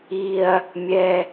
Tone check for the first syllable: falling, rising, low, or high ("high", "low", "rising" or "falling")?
low